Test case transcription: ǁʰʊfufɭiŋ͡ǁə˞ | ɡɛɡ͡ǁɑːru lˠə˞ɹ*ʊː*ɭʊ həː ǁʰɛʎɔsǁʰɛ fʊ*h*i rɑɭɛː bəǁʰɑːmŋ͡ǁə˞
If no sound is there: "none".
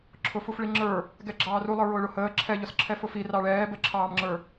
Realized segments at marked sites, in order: ʊː, f

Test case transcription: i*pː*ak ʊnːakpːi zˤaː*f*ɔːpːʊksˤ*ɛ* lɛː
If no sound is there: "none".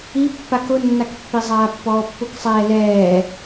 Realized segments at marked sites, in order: pː, pː, ɛː

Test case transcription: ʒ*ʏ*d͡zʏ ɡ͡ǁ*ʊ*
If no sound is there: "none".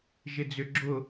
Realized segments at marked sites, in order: ɪ, ʊ

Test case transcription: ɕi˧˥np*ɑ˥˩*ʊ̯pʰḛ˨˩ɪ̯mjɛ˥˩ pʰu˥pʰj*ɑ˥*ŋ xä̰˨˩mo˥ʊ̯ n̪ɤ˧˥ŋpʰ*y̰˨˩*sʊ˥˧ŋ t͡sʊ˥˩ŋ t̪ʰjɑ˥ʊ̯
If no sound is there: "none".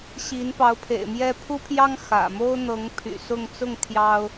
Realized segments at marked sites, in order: ɑ˧˥, ɑ˥, y̰˨˩

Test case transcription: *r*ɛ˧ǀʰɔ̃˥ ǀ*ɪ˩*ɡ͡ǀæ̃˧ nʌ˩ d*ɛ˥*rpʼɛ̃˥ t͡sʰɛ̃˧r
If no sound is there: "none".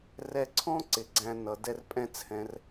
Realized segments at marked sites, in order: r, ɪ˩, ɛ˥

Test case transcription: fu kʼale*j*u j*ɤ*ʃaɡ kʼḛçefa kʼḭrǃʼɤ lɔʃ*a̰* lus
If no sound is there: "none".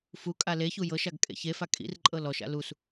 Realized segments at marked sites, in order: ç, ɤ, a̰

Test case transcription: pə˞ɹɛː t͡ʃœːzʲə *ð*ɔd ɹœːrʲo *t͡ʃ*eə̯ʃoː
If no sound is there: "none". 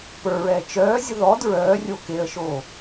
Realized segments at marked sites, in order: ð, k

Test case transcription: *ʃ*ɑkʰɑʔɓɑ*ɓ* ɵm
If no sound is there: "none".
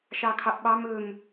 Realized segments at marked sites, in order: ʃ, m

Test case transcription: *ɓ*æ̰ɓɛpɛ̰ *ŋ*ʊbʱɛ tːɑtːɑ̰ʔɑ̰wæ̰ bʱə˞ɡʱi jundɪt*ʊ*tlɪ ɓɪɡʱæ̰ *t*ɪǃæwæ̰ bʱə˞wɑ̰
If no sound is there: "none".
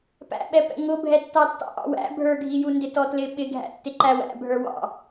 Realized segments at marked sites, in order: p, ŋ, ɔ, tː

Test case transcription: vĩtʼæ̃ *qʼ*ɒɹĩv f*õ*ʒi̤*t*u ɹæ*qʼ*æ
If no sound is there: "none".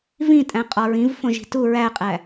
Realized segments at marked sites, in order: qʼ, õ, t, qʼ

